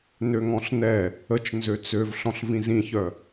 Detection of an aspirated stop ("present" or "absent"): absent